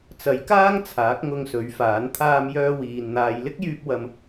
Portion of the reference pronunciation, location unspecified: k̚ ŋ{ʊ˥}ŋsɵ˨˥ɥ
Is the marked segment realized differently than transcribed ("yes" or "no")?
yes